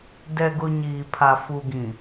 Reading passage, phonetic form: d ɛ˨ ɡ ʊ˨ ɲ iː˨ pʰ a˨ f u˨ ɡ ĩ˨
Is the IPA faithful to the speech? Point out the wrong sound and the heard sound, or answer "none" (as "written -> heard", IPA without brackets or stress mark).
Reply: none